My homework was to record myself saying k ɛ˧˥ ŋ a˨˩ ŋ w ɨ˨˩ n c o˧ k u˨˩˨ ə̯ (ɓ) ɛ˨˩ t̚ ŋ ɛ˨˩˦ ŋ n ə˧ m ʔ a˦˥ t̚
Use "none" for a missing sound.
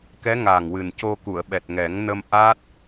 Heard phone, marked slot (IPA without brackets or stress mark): ɓ